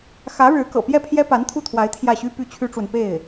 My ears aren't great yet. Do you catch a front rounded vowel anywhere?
yes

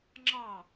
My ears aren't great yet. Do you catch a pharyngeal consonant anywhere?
no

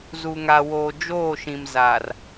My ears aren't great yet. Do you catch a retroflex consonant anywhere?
no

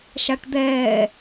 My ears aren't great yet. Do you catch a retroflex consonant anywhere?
yes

